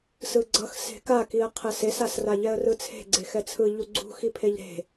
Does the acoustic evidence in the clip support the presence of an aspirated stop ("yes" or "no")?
yes